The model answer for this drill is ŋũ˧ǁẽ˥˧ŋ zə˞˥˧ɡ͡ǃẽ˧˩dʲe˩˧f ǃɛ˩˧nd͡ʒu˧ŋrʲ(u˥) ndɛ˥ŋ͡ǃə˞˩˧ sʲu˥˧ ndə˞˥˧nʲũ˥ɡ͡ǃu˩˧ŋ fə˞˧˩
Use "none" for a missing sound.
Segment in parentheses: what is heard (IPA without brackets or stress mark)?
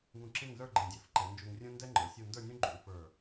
ũ˥